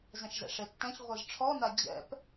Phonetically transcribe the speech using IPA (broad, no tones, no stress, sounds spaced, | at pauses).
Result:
z ɛ̃ ʃ z ɛ̰ ʂ e tː ɛ̃ ç ʁʷ ɨ z ʈ͡ʂʰ ɔ n̪ a d͡ʑ ɛ̰ p